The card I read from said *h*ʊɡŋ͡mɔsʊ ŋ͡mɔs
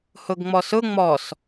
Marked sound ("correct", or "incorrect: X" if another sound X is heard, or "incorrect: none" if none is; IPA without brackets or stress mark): correct